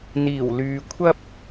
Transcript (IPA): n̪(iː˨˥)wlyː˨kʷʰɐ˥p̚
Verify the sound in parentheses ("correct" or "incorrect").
incorrect